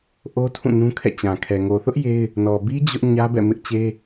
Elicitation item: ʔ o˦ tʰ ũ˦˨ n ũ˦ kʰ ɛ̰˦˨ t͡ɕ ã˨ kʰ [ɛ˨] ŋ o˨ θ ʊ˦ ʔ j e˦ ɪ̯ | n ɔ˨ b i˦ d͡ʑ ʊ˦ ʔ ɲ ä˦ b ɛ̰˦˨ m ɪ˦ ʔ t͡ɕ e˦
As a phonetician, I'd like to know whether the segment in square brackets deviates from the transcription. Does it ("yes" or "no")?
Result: no